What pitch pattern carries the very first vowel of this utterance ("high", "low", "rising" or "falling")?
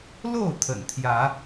falling